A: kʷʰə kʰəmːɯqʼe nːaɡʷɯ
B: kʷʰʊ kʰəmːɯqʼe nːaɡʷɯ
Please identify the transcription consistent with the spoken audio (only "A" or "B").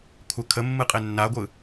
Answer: A